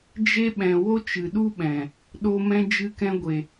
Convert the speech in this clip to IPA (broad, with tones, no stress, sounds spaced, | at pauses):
d͡ʒ e˧ ɓ ɛ̃˨ w o˦ t͡ʃ ɨ˨ ɗ u˦ ɓ ɛ̃˨ | ɗ o˧ m ɛ̃˧ d͡ʒ ɨ˧ k ɛ̃˧ ɡʷ e˨